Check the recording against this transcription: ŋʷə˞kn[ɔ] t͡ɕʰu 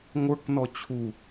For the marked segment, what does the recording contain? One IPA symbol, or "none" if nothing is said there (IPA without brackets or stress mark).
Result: ɔ